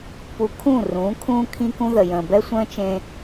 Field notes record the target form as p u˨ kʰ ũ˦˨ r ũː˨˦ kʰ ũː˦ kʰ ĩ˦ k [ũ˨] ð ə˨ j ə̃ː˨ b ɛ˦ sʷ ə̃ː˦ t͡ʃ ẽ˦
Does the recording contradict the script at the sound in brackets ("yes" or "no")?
yes